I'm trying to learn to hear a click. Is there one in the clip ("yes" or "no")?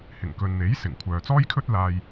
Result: no